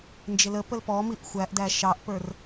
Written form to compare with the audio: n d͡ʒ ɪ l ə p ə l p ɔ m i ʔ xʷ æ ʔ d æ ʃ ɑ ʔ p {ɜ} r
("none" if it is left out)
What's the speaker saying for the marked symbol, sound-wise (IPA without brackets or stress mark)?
ə˞